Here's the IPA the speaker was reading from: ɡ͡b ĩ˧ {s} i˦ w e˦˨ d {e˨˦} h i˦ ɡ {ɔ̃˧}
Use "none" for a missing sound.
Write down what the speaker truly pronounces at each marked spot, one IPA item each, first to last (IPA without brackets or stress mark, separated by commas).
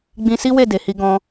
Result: s, e˨˦, ɔ̃˦